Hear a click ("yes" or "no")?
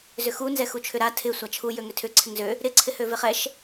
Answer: yes